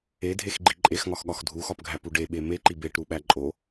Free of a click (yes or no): no